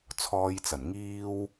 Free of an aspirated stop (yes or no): no